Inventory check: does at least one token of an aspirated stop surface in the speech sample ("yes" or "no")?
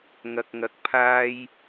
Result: yes